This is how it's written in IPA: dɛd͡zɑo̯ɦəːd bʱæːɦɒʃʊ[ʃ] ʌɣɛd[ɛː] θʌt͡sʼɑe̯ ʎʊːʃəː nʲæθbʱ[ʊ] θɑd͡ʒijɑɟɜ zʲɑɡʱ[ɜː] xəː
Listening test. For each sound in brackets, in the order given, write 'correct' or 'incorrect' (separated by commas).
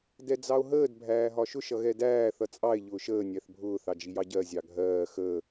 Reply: correct, incorrect, incorrect, correct